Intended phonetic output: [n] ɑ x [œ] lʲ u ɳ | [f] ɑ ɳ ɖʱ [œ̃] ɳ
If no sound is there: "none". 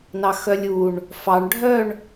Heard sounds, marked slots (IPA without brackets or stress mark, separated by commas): n, œ, f, œ